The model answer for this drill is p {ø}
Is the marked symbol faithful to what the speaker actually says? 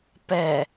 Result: no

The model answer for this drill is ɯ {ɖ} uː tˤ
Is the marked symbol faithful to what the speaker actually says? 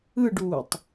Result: yes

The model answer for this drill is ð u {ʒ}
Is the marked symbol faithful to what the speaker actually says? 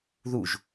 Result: yes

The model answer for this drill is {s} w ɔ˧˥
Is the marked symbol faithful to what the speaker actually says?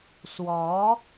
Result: yes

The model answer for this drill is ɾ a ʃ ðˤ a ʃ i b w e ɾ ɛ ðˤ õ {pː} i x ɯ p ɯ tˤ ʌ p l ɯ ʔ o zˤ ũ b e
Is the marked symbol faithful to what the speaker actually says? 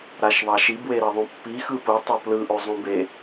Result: yes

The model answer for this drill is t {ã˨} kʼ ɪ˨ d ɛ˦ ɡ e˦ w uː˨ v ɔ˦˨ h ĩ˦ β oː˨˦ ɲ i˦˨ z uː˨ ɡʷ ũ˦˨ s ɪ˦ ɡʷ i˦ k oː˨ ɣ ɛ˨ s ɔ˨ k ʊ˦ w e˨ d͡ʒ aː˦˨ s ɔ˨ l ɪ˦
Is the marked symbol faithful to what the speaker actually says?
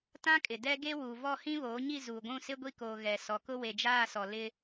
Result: no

